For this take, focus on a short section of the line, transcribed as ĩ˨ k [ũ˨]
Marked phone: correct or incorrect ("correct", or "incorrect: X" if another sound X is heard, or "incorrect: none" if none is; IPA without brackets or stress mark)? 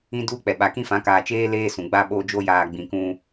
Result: incorrect: ũ˦